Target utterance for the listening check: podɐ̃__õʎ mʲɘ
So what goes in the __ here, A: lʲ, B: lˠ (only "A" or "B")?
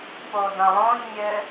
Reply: B